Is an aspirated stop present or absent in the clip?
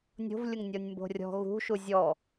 absent